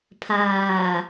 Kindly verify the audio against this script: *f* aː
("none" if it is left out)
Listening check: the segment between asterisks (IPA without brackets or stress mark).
pʰ